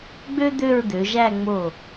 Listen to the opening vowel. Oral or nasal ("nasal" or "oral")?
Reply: oral